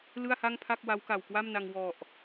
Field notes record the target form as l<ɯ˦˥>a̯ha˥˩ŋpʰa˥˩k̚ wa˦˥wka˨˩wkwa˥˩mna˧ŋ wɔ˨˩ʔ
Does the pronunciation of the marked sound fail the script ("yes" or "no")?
yes